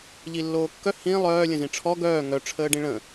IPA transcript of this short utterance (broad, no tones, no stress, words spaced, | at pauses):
ʎilːoːkːœ hĩ lˠœː lʲə̃zĩʈ͡ʂʰɔ ɡœː ŋœ ʈ͡ʂʰəːɖĩɭə̃